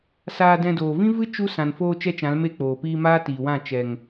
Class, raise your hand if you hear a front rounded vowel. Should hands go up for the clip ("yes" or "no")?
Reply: no